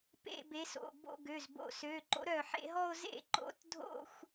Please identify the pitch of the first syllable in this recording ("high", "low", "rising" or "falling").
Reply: falling